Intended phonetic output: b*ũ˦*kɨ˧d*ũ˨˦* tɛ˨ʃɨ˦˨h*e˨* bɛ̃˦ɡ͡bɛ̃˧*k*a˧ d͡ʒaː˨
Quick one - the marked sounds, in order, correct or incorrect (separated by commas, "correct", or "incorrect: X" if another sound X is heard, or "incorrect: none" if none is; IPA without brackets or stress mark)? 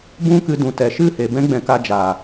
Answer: correct, incorrect: ũ˨, correct, correct